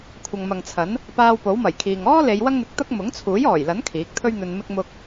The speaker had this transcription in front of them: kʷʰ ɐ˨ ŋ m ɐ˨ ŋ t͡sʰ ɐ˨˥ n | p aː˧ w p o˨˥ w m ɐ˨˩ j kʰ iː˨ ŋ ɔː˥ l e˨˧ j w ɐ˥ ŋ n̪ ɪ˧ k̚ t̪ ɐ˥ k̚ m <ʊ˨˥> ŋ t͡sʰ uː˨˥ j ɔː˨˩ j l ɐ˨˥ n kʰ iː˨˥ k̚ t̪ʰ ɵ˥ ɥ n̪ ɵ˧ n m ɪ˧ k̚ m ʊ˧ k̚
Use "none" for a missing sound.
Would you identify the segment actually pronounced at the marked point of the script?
ʊ˨˥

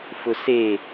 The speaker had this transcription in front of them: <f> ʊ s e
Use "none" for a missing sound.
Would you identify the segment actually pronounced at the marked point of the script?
f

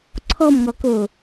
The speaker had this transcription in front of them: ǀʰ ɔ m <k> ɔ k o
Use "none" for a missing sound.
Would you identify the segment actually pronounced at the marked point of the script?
ŋ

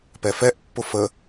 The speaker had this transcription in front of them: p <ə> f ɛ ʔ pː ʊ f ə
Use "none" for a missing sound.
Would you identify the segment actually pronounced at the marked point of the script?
ɛ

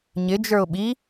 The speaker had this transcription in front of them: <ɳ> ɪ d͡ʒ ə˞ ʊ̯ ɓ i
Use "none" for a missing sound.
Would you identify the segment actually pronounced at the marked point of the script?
ɲ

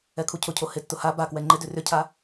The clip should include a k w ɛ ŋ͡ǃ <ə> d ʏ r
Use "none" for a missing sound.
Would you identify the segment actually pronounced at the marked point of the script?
ɪ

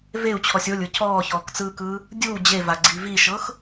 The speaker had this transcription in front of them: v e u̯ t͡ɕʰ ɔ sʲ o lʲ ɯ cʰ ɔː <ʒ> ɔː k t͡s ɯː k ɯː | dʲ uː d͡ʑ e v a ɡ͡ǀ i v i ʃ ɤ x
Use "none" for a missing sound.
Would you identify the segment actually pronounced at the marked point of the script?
ç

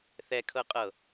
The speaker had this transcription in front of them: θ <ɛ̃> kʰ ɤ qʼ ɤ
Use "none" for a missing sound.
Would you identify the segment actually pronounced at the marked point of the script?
ɛ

